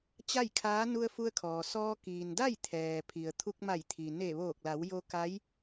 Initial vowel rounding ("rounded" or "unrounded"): unrounded